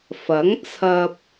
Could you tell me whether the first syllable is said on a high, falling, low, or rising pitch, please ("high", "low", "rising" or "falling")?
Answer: rising